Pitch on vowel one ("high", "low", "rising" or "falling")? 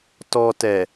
low